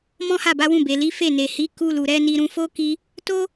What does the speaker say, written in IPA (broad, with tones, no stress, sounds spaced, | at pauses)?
m ɔ̃˦ h a˦˨ b a˨˦ w ũ˦˨ b e˨ l i˨˦ f e˦˨ n e˨ h i˨˦ k u˧ l u˨ ɾ ɛ˧ n i˧ ɾ ũ˧ f o˦ k i˦ | t o˦